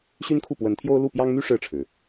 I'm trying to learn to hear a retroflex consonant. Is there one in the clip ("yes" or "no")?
yes